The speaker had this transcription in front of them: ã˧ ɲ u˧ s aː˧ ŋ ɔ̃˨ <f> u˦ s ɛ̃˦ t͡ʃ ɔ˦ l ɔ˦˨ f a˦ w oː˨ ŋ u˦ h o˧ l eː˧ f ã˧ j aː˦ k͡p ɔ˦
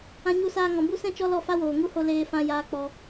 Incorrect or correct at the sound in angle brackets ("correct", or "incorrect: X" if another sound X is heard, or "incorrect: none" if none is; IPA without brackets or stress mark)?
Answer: incorrect: b